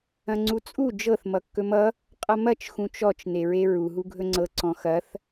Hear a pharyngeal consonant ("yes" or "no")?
no